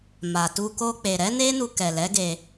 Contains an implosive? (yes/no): no